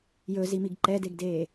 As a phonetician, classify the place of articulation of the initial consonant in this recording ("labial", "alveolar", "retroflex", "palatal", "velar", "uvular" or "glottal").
palatal